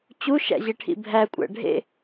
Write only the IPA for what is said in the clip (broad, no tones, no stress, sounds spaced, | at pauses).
t͡ɕ u ʃ æ̰ ʑ e ʈʰ ḭ bʱ æ kʷʼ æ̰ ɖʱ ḛ